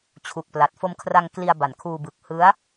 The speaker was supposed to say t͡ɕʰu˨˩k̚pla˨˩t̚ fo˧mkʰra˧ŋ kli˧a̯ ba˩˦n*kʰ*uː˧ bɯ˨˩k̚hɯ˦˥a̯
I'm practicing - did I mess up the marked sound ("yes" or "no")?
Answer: no